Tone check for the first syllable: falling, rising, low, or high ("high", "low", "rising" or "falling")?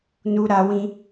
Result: high